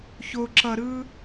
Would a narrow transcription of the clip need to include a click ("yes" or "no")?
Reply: yes